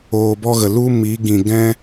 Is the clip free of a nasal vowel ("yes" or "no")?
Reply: no